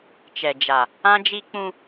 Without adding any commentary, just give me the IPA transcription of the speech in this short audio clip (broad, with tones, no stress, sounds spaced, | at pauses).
t͡ʃ ɛ˨ d͡ʒ a˨ | ã˦ d͡ʒ i˦ k͡p ũ˦